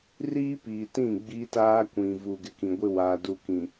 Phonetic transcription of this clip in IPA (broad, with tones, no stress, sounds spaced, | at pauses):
r iː˦ p iː˨ t ĩ˦˨ ɡ͡b i˦ t aː˦ kʷ ĩ˨ v u˨ ɡ ɪ˨ k ĩ˨ ɡʷ ɪ˦ w aː˨ d u˨ k ĩ˨